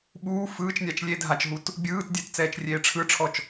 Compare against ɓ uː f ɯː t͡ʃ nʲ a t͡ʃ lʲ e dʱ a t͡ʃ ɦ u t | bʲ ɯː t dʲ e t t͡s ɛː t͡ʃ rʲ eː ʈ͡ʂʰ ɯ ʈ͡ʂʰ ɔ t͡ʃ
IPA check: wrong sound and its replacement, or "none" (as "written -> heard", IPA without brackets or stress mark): none